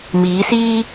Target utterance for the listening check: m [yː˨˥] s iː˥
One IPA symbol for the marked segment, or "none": iː˨˥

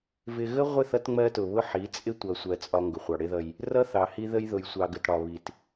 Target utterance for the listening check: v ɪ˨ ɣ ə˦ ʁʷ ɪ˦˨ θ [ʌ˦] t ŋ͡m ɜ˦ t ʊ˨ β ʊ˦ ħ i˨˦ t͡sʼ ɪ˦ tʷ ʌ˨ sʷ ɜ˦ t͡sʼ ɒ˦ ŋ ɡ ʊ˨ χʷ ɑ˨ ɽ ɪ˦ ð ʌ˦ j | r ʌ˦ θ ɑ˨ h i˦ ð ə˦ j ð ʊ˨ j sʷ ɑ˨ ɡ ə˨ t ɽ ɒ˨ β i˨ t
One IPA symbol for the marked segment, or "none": ʌ˦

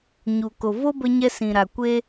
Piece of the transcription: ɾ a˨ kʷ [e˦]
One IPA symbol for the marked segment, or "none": e˧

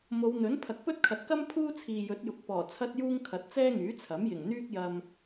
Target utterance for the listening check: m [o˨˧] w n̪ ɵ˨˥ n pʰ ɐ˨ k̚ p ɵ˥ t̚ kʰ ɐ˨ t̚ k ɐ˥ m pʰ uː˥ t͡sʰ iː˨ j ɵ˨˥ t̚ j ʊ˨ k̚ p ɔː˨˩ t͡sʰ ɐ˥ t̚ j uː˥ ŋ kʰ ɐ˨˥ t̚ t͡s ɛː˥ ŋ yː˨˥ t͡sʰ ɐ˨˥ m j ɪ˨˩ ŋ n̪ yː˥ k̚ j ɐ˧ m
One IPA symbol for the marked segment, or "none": o˨˧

